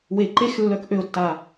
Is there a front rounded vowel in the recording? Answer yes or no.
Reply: yes